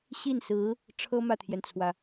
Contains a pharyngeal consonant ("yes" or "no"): no